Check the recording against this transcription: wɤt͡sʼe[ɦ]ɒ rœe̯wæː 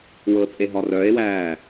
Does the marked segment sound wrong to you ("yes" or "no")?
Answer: no